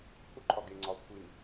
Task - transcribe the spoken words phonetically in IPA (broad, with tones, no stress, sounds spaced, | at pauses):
h u˦ ǃʰ ɒ˨ ɡ e˨ ŋ͡ǀ ɒ˨ ʊ̯ kʷʰ i˨ n